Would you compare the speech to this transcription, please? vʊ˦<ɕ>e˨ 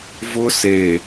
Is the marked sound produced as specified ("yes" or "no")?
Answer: no